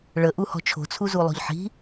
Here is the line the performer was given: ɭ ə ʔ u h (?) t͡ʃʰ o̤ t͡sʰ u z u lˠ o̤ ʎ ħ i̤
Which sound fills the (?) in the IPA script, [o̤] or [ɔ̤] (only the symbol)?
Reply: ɔ̤